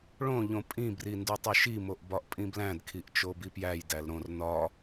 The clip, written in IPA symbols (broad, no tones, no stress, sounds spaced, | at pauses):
ɭ õ ʎ õ pʼ ĩ b r i n d u tˤ u ʃ i m o ʔ b ɒ ʔ pʼ ĩ b l æ̃ d kʰ i ʔ t͡ʃ o b i p j æ j d æ l ɾ õ r n ɒ